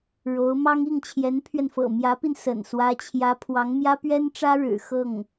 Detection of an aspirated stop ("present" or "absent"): present